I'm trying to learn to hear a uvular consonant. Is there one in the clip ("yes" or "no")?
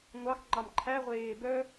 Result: yes